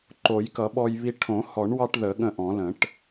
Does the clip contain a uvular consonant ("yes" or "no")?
no